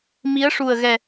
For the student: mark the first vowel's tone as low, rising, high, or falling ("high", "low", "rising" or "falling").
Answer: rising